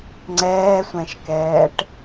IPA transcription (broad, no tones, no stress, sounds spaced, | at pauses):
ŋ͡ǀ ɛː sʷ ɛ̃ ʃ k ɛː ʈ